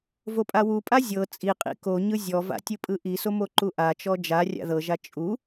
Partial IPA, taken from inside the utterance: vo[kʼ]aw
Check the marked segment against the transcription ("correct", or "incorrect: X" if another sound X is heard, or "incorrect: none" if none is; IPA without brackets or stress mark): incorrect: pʼ